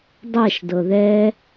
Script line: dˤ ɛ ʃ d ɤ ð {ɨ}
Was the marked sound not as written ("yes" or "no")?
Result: yes